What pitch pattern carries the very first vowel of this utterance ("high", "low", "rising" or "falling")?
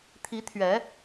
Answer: rising